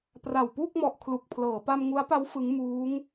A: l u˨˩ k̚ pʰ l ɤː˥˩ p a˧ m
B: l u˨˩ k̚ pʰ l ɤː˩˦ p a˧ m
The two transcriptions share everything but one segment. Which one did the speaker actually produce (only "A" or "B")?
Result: B